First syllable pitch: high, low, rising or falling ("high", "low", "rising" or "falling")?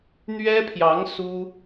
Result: high